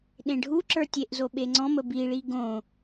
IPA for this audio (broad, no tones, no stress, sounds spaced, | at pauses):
ɗ ẽ ɖʱ u ǁ ə˞ tʲ e ʔ z o ɓ e ŋ͡ǀ ɔ̃ m ə b i ɭ i ɡ õ